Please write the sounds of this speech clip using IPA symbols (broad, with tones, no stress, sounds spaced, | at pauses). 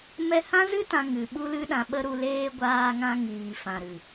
m ɛ˧ h ã˦ z ɨ˦ t ã˧ ŋ ɨ˨ ɓ u˦ l ɨ˦ ɗ ã˧ ɓ ə˦ ɾ u˧ l eː˦ ɡʷ aː˧ ŋ ã˧ ŋ iː˨ f ã˨ ɾ ɨ˨